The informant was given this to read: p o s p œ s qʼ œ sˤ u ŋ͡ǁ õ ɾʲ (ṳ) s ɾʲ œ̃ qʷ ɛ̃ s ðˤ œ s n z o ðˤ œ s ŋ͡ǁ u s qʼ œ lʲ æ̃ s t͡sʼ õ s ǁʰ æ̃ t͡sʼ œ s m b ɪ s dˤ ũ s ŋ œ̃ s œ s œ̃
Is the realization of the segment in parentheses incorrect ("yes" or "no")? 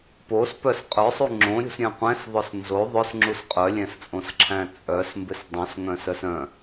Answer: no